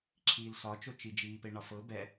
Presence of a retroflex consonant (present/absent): present